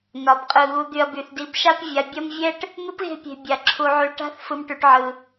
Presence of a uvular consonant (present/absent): present